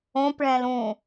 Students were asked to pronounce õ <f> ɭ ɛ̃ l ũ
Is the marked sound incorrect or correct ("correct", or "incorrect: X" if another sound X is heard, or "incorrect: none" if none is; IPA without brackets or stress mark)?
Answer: incorrect: p